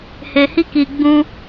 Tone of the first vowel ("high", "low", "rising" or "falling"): low